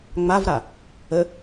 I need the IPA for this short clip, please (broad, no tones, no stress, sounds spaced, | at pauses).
ŋ͡m a v ɾ a | ə